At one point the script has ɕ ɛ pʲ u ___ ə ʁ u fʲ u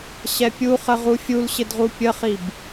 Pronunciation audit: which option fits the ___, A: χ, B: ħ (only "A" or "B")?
A